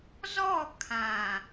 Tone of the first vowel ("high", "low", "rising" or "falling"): falling